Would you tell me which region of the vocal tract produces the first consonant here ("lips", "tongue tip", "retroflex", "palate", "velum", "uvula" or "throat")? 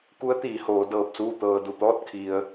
velum